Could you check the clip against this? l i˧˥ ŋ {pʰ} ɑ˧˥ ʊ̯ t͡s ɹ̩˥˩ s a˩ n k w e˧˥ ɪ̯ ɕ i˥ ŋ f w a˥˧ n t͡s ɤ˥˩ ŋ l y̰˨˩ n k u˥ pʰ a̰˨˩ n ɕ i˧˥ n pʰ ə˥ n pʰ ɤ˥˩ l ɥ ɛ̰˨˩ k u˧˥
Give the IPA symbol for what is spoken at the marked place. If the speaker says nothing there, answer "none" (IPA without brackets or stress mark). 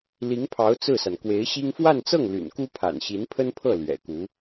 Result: pʰ